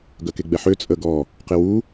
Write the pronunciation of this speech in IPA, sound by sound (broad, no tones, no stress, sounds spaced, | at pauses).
ɡ œ k e ɡ͡b ɛ ħ ø t͡sʼ ə ɡ ɔ | q e w u